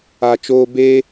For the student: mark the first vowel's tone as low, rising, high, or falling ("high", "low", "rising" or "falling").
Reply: low